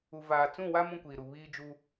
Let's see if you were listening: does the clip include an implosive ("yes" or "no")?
no